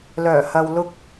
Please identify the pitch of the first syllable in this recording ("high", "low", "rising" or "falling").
low